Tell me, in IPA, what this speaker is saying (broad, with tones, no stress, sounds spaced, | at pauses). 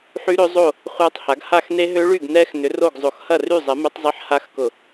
ħ y˦˥ ɾ ø˦˥ zˤ o˥˨ | χʷ a˦˥ tˤ h a˨˥ ɡ h a˥˨ x n e˦˥ ɦ ø˦˥ ɭ y˥˨ ɡ n ɛ˦˥ x n ʏ˨˥ r o˥˨ ɡ zˤ o˧˩˧ x h ɐ˥˨ r y˥˨ zˤ ɛ˨˥ m ɛ˦˥ tˤ zˤ e˦˥ ħ h a˦˥ x k ʊ˧˩˧